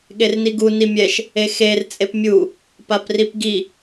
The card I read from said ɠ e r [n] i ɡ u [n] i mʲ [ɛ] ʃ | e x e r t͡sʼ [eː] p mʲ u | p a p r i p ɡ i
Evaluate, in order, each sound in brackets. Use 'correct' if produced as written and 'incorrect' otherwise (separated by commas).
correct, correct, correct, incorrect